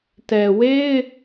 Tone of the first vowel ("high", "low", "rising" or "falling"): low